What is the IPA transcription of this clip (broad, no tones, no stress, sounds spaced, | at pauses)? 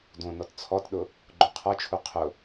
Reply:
d õ n ɔ t t͡sʰ ɔ t ɗ ʊ | ɡ͡ǃ õ qʰ ɔ t͡ʃʰ u qʰ ʊ